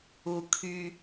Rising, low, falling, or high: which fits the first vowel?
low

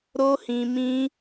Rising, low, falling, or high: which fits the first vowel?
high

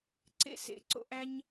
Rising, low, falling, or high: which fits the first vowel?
high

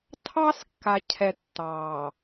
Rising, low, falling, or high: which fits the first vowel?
high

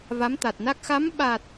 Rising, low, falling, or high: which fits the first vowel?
rising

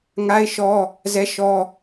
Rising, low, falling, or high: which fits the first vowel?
high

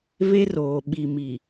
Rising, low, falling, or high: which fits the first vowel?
high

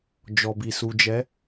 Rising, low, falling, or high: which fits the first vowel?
low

